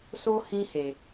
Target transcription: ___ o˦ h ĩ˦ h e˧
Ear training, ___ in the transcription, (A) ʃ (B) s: B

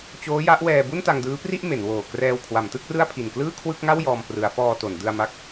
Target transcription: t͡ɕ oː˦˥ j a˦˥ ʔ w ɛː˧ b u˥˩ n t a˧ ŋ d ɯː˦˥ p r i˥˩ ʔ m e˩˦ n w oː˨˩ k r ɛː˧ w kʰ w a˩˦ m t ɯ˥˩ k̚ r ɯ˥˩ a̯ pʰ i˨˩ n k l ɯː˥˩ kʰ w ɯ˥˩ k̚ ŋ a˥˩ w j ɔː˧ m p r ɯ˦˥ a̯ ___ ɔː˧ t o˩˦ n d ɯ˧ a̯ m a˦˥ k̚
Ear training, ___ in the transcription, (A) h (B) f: B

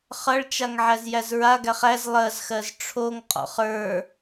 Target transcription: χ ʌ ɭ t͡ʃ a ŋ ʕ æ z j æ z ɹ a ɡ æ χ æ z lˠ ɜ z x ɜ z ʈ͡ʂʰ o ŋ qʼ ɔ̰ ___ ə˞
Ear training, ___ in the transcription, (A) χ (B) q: A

